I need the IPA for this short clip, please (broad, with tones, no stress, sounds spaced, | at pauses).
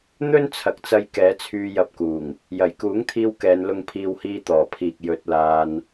n̪ ɵ˥ n t͡sʰ ɐ˨ k̚ t͡s ɐ˧ j k ɛː˨˥ t͡sʰ yː˧ j ɐ˧ p̚ k uː˨˩ ŋ | j ɐ˨˩ j k uː˨˥ ŋ t̪ʰ iː˧ w k ɛː˨˧ n l ʊ˧ ŋ pʰ iː˧ w h iː˧ t̪ ɔː˨˩ pʰ iː˨ k̚ j ɵ˧ t̚ l aː˧ n